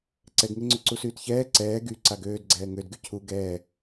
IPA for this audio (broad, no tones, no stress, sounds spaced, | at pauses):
ǀ ɛ ɡ ŋ e ŋ͡ǀ ø ǀ u s yː t ç ɛː ǀ ɛː ɡ y ǀ a ɡ øː d ɡ͡ǀ ɛː ŋ ø d ɡ y cʰ u ɡ ɛː